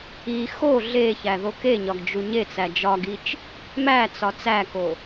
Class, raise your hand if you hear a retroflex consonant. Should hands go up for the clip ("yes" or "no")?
no